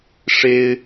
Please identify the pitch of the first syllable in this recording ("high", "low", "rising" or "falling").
high